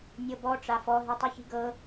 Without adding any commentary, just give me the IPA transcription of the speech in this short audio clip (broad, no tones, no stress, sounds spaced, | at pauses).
nʲ ɤ b ɔ ʈ͡ʂ a f ɔ ɦ i tˤ ɯ ç i̤ ɡ ɤ